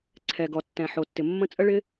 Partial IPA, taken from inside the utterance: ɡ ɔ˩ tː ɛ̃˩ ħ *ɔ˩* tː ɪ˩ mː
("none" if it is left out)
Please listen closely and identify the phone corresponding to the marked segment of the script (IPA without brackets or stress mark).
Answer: o˩